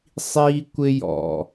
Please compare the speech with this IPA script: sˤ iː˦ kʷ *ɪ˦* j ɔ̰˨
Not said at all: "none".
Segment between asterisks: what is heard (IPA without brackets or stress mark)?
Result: ɪ˦